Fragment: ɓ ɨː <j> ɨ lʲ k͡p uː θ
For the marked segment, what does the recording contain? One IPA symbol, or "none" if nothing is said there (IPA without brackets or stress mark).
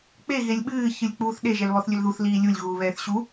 ç